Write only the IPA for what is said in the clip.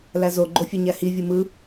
læzo ɡ͡ǃofʲøɲæhi vʲɯmɯ

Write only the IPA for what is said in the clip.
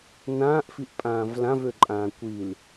nãːʔfiʔpʼãːv lãvøǃʼãː kʷil

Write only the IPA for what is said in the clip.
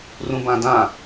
rũbãdã

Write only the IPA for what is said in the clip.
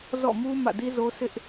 zɔ̰˦˨mu˦ mä̰˦˨di˦zo˦sʰɪ˦ʔ

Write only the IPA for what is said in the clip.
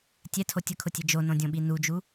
tʲɛtʰo tʲʊkʰʊtʲe d͡ʒonõdʲõɓi nud͡ʒu

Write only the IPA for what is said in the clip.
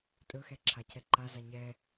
tʼɵxɛǁʰa cʰɛǃaza ɲɛ

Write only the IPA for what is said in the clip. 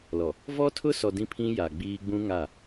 lɔ˨ | vɔ˦tʰʊ˦sɔ˨ dĩ˦pʰĩ˦ja˨ ɡ͡biː˦ ɡ͡bũ˦ŋa˦˨

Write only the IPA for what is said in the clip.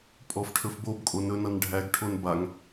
pʼɔfʈʰɵfbobkʼo nɵnʌnɖʱæɡʈʰon baŋ

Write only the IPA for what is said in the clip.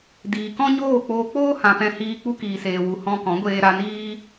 diː˨kɔ̃˦ɲoː˦˨k͡poː˧ k͡poː˦hã˨ pɛ̃˧hiː˧ k͡pu˧kiː˨seː˨wu˨ hɔ̃˧kɔ̃˨˦ɡʷeː˧ ɾa˧niː˦

